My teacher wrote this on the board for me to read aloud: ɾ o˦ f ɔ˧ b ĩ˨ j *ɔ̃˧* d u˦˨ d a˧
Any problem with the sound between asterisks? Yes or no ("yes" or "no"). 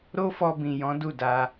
yes